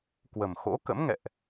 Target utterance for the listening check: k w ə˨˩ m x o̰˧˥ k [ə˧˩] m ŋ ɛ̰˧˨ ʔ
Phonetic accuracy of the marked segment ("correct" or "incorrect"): incorrect